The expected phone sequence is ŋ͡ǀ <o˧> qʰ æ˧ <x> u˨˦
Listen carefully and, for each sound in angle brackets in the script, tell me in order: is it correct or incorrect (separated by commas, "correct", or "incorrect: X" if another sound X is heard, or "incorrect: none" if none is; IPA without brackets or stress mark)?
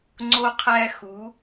correct, correct